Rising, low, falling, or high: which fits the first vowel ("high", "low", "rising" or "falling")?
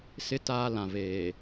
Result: high